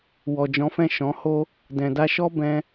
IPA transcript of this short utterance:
w ɔ˨ d͡ʒ ɔ̃˨˦ f ɛ̃˦˨ ʃ ɔ̃˨˦ h o˦ | d ɛ̃˨ d a˧ ʃ ɔ˦ b ɛ̃˦

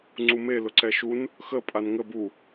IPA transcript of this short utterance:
ŋ͡ǀ u m e l ʊ ǀ ɛ ʃ u n | x ə pʼ a n ŋ ə b u

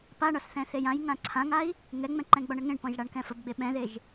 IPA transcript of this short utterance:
p a ɳ ɒ s θ ɛ̃ θ e j ã j ŋ ã ǀʰ ã ŋ a i̯ | ŋ ɛ ŋ͡m ɛ̃ ǃ ɛ̃ ɡ͡b ɒ ɳ ə ŋ ẽ ɳ p ɔ̃ ʒ ɽ a ɳ k ɛ̃ f ə b ɡ͡b e ɓ ɛ̃ ð e ʒ

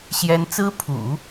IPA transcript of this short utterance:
ɕ j ɛ˥ n t͡s ɹ̩˥ pʰ ṵ˨˩˦

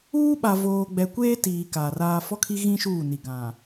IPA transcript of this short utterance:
uː˦ ɓ a˨ v oː˨ ɡ͡b ɛ˨ kʷ eː˦ t iː˨ k a˨ r aː˦ f ɔ˦ kʰ i˦ ɣ ĩ˦ ʃ uː˦˨ n i˨ ɡ ã˨

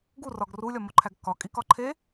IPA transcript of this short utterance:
ɡ u r ɒ ɡ r u lʲ ɒ m o ǃʰ æ ɡ k ɒ kʼ i k ɒ ǃʰ e

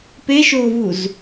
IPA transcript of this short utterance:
p e ʃ oː v u z

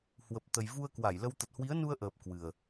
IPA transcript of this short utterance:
h w ə˨˩ p̚ t̪ ə˨˩ j v u˧ ə̯ k w a˧˩ j l ə˧ w t̪ ə˨˩ t̚ h w i˨˦ ə̯ n u˧ ə̯ ʔ əː˨˩ p̚ k w ɨ˨˩ ə̯

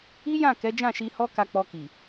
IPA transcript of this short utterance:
i˦ j ã˦˨ k ɛ˨˦ d͡ʒ ã˦˨ ʃ i˧ h ɔ˦ k a˧ k͡p ɔ˧ k i˨

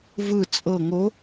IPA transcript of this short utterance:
v ɯ t͡sʼ ɤ ŋ o

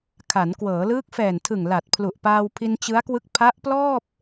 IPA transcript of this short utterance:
kʰ a˩˦ n k w ɤː˩˦ l ɯː˦˥ k̚ f ɛː˨˩ n tʰ ɯ˨˩ ŋ l a˨˩ t̚ pʰ l u˨˩ ʔ p aː˧ w pʰ i˧ n t͡ɕ ɯ˦˥ a̯ k w ɯ˦˥ k̚ pʰ a˦˥ ʔ p l ɔː˥˩ p̚

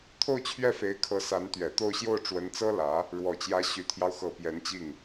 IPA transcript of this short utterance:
t̪ʰ o˥˧ ʊ̯ t͡ɕʰ ɥ ɛ˥˩ f e˧˥ ɪ̯ kʰ ɤ˧˥ s a˧˥ n t̪ ɥ ɛ˨˩ t̪ o˥˧ ʊ̯ ɕ j o˥˩ ʊ̯ ʈ͡ʂ w ə˧˥ n t͡s ɤ˥ l ä˧˥ | ɻ w ɔ˨˩ t͡ɕ j ä˧˥ ɕ y˨˩ t̪ʰ j ɑ˦ ʊ̯ x ɤ˨˩ p j ɛ˧˥ n t͡ɕ i˥˩ ŋ

